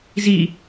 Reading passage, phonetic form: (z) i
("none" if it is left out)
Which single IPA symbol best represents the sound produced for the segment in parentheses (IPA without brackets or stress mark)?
z